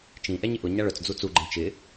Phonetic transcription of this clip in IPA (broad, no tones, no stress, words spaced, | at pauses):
t͡ʃĩ ʔɛɲɪʔʊ ɲaɭœt͡s d͡zut͡su ɡ͡ǃɛ̃t͡ʃɪ